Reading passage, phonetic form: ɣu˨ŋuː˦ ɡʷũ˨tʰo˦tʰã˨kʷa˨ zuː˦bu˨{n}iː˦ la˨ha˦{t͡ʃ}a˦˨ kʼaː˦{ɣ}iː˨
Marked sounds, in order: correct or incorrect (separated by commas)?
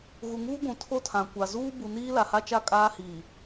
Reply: correct, correct, incorrect